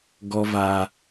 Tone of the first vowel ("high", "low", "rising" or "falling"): high